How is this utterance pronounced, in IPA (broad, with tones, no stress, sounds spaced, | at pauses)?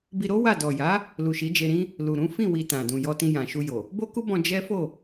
b i˧ ɾ o˦ w a˦˨ d ɔ˨ j a˨˦ | l u˨ ʃ i˨˦ d͡ʒ e˧ ɾ ĩ˦ | l u˨ ɾ ũ˨˦ f ĩ˦˨ w i˧ t ã˨ d ũ˨ j ɔ˧ t ĩ˧ j ã˨ ʃ u˧ j o˨ | b o˦ k u˦ b ɔ̃˧ d͡ʒ ɛ˦ f o˦˨